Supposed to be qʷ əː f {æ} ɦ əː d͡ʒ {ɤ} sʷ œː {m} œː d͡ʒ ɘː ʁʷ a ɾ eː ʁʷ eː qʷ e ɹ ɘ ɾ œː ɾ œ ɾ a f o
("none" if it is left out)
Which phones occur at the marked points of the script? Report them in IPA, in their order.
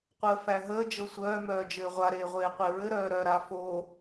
æ, ɤ, m

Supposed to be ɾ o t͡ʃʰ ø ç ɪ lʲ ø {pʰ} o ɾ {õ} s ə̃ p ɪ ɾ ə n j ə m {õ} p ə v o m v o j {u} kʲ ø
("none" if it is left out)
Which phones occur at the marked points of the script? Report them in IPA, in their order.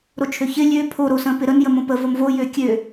pʰ, o, õ, ø

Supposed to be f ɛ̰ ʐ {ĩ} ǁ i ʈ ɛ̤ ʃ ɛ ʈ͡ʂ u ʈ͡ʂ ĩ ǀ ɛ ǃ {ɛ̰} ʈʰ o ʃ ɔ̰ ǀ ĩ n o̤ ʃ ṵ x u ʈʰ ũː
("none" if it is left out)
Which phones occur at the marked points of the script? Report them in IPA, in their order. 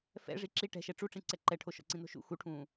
i, ɛ

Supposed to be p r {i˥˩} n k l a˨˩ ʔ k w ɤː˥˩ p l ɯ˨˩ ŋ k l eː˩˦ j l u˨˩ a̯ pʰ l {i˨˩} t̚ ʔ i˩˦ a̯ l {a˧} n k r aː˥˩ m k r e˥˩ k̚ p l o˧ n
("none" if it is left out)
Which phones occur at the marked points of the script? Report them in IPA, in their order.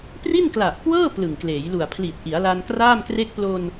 i˥˩, i˨˩, a˧

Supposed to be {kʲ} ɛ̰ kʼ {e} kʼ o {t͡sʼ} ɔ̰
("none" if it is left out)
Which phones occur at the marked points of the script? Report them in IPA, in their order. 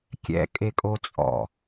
kʲ, e, t͡sʼ

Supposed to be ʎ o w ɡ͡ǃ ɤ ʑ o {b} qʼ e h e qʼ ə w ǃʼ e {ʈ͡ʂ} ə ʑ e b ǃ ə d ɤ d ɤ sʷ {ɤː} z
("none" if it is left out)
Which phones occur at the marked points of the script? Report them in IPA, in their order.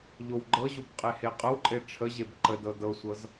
b, ʈ͡ʂʰ, ɤ

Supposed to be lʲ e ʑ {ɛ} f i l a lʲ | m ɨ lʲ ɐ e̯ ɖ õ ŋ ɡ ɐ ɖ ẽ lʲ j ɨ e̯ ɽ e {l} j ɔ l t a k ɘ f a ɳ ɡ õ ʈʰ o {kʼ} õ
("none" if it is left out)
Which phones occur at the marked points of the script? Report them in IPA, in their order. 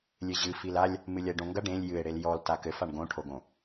ɨ, l, ɡ

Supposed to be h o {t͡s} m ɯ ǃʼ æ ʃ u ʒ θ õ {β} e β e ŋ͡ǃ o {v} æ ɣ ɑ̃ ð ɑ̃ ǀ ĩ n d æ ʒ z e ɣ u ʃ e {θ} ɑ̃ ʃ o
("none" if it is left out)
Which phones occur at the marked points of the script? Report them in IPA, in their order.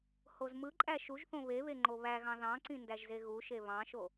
z, β, β, β

